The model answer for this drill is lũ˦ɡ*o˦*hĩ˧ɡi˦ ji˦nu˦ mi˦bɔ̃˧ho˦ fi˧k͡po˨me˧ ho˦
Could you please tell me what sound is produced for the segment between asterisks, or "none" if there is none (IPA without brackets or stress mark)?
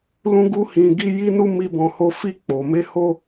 u˦